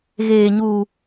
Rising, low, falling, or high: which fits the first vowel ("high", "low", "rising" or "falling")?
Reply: low